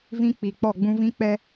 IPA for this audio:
v ĩ˦ k͡p i˨ k͡p ɔ˦˨ ɡ͡b ũ˦ v ĩ˦ k͡p ɛ˦

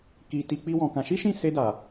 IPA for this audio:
k i˧ t i˧ k͡p i˦ w ɔ̃˧ k ã˧ ʃ i˦ ʃ ĩ˦˨ s e˧ d a˨

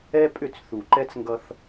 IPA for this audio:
ɛ˦ pʼ ʏ˦˨ t͡s θ u˨ ǃ ɛ˦ t͡s ŋ ɡ ʌ˦ θ

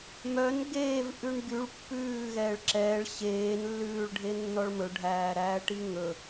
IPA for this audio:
m œ n ɡ eː v ʔ ʉ ɳ ɡ y ɭ pː ʉː ɣ ɛː ɭ ǁ ɛː ɭ ɕ eː n lː ʉː ɭ ɖʱ e nː ɔ ɭ m ɵ ɖʱ æː ɾ æː ʈ i ŋ ɵ

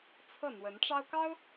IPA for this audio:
t͡sʰ ɤ˥˩ n̪ w ə˧˥ n ʈ͡ʂ ɑ˥ ʊ̯ k ɑ˥ ʊ̯

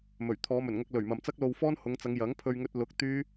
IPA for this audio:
m ɵ˨˩ ɥ t̪ʰ ɔː˨˧ m ɵ˨˩ n ŋ ɐ˧ k̚ l ɵ˨˩ ɥ m ɐ˨ m t͡s ɐ˥ k̚ l o˧ w f ɔː˥ n h ʊ˨˧ ŋ t͡s ɐ˨˧ ŋ j ɐ˨˥ ŋ pʰ ɵ˧ ɥ ŋ ɵ˧ t̚ l ʊ˨˥ k̚ t̪ yː˥

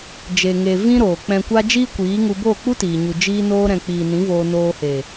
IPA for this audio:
d͡ʒ e˨ ŋ e˨ v ĩ˦ ɾ oː˨ k͡p ɛ̃˨ kʷ a˧ d͡ʒ iː˦ kʷ iː˨˦ ŋ u˧ b oː˦˨ k͡p u˦ t iː˨ ɲ u˨ d͡ʒ iː˧ n oː˧ ɾ ɛ̃˨ k͡p iː˨ n ĩ˨˦ v oː˧ n oː˧ h e˨

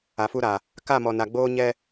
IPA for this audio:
a˨ f u˦ ɾ a˨ | k a˦˨ m ɔ˨ n a˨ ɡ͡b oː˦ ɲ ɛ˦

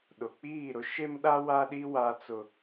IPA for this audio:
ɗ ʊ˨ k͡p iː˦˨ ɾ ʊ˦ ʃ e˦ m ɗ a˦ w a˦ ɗ i˦ w a˦ t͡s ʊ˦

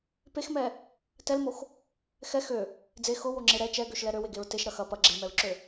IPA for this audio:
p e x m ɛ | t ɛ l m o x | x ɛ x ø | d͡z e x ʊ w o ŋ͡ǁ e ɾ ɛ t͡ʃ ɛ ɡ ø ʃ l ɛ ɾ ø w e ɡ e ɹ t e ʃ ɾ ɐ x ɐ p ɐ ɡ͡ǁ e m ɛ ɹ ǁ ø

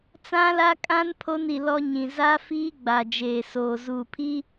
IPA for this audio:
t͡s ã˦ l a˦ kʼ ã˦ n pʰ o˦ n i˨ l ɔ˦ ɲ ĩ˨ z a˦ f iː˦ ɡ͡b a˨ d͡ʒ eː˨ s oː˨ z uː˨ pʰ i˦

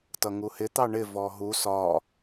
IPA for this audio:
t ʌ ŋ u h ɪ t̪ ɑ ɳ ɪ v ɔ ɦ u s ɒ

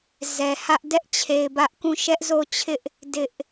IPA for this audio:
z ɛ˨ h ä˦ ʔ d ɛ˦ ʔ t͡ɕʰ e˨ ɪ̯ b ä˦ ʔ k ũ˦˨ ʃ ɛ˦ ʔ z o˦˨ t͡ɕʰ ɪ˦ ʔ | d ɪ˦ ʔ

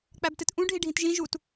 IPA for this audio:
k͡p æ b t ɨ t ʔ ũ ɖʱ i ɖʱ ĩ t ʒ ĩ ʒ u t

